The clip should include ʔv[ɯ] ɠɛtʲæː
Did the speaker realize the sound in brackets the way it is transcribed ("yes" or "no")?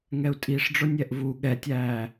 no